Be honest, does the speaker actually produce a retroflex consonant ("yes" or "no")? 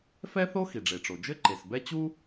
yes